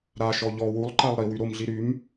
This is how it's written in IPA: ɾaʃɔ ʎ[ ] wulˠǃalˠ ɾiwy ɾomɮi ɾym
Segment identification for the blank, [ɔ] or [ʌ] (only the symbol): ɔ